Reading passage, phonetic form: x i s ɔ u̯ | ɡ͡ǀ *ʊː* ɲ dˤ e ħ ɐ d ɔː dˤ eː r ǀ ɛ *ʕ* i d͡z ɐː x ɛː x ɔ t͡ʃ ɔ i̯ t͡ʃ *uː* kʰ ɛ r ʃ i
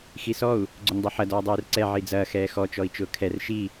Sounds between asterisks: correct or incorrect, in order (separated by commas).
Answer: incorrect, correct, incorrect